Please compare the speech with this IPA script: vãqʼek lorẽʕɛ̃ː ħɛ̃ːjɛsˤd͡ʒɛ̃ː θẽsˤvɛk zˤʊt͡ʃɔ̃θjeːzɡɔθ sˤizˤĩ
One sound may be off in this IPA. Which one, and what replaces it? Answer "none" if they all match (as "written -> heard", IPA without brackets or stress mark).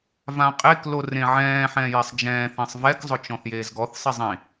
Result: none